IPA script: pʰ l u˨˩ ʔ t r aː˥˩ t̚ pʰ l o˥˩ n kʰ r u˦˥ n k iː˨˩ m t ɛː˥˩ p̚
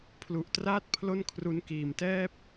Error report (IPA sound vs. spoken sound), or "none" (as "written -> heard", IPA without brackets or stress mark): none